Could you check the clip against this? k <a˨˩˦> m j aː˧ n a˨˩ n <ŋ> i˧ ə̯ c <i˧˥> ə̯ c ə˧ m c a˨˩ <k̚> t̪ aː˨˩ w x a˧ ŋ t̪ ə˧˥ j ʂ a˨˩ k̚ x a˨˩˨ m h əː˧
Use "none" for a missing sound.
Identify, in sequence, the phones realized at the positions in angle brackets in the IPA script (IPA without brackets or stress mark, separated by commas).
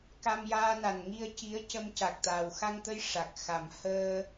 a˧, ŋ, i˧˥, k̚